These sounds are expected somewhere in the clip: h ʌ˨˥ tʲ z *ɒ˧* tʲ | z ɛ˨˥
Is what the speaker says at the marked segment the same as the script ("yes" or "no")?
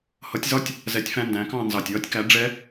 no